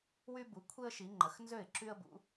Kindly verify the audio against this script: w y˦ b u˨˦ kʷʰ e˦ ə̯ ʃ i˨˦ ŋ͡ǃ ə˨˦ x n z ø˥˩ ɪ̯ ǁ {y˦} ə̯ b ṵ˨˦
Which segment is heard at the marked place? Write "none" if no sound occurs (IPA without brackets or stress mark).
y˦